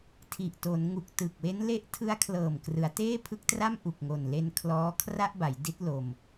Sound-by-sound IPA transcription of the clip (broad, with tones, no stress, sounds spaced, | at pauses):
tʰ i˨˩ ʔ t o˩˦ n ŋ u˨˩ k̚ t ɯ˨˩ k̚ w e˦˥ n l e˦˥ ʔ tʰ ɯ˦˥ a̯ kʰ l ɤː˨˩ m k r ɯ˩˦ a̯ t eː˥˩ pʰ ɯ˦˥ k̚ t r a˥˩ m ʔ u˨˩ k̚ ŋ o˨˩ n l e˧ n kʰ l ɔː˦˥ kʰ r a˥˩ ʔ b a˩˦ j d i˦˥ t̚ l o˧ m